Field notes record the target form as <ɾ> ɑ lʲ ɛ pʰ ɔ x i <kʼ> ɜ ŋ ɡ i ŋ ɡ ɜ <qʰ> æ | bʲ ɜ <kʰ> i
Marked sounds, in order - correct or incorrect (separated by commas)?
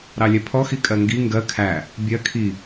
correct, correct, incorrect, correct